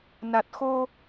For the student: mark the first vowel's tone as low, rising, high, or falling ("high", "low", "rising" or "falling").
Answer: low